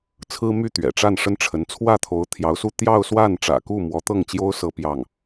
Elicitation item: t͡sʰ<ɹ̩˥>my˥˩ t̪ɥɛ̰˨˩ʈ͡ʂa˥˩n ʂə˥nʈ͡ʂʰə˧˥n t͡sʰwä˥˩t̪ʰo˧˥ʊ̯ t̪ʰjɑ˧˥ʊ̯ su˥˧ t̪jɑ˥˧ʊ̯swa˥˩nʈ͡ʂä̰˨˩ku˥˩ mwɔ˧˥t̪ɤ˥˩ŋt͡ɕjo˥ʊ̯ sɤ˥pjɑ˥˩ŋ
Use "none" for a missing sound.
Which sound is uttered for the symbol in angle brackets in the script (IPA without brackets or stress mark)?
ɹ̩˥